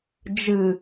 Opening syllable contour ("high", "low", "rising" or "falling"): low